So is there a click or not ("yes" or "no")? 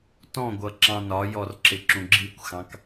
yes